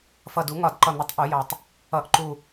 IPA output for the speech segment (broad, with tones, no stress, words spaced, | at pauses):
fʌ˨˩d u˨˩˦ŋɒ˨˩˦dǃʌ˨˩n̪ʊ˨˩˦tˤ ʔu˨˩˦jɑ˨˩tˤ | ʌ˨˩ʔǃu˨˩